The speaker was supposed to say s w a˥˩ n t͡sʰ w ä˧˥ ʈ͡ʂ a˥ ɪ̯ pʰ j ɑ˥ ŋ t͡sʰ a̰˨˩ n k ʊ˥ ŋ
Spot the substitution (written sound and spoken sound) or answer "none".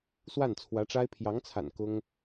ɑ˥ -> ɑ˧˥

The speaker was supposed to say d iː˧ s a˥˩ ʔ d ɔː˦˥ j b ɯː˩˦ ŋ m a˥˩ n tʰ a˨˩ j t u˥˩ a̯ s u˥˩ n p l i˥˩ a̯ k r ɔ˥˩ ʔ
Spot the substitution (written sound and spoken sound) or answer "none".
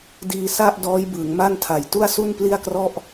none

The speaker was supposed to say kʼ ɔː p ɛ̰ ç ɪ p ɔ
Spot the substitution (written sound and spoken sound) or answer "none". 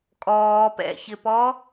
none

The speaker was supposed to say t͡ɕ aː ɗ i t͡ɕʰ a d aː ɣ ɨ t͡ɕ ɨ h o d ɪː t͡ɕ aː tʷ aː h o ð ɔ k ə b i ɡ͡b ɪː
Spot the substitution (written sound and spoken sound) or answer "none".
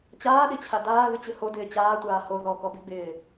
ə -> ɔ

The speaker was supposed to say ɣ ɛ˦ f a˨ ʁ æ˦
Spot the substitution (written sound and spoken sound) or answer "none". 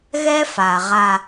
æ˦ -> a˦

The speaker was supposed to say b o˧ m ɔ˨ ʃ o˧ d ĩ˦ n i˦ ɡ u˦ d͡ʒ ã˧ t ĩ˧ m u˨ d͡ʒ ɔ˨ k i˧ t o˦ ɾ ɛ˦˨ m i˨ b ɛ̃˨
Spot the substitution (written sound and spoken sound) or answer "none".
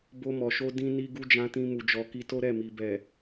ɛ̃˨ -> ɛ˨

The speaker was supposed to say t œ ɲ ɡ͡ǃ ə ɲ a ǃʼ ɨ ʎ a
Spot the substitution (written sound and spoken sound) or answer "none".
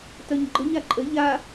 ɨ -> ə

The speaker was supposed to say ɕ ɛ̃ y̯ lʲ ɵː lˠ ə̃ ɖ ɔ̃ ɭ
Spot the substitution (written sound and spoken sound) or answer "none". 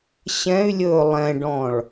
ə̃ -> ɛ̃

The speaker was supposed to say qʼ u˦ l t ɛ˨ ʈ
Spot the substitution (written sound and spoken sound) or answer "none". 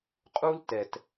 ʈ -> t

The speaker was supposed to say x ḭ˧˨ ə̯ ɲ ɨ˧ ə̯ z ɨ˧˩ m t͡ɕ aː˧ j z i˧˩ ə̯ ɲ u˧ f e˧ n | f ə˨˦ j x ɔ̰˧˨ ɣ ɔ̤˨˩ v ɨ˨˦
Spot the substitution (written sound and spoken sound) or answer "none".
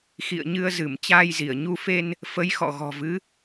none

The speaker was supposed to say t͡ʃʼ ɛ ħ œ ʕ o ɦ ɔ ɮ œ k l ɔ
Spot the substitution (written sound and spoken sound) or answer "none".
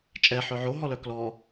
ɮ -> l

